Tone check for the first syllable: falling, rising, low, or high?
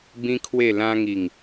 high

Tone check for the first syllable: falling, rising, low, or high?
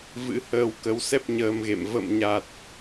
rising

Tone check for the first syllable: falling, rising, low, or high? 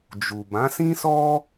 low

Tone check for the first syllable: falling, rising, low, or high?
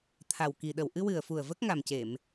low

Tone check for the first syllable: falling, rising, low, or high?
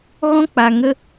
high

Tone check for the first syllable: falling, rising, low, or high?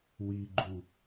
low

